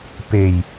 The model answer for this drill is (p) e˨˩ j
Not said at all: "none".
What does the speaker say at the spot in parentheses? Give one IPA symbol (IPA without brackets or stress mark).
p